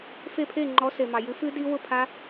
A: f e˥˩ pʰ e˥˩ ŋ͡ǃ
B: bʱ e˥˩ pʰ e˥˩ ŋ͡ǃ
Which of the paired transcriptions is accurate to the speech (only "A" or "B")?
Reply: A